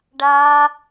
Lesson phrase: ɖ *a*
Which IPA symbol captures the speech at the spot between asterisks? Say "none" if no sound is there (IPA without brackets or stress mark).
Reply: a